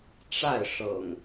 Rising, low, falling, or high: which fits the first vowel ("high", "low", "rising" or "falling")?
falling